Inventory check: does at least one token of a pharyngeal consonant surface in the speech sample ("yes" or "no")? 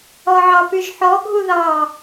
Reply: yes